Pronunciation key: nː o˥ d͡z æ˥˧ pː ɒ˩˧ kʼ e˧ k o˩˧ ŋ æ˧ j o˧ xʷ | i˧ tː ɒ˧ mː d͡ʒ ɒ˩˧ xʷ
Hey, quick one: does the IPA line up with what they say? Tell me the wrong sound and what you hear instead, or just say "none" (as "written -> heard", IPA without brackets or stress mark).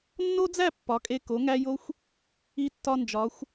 mː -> n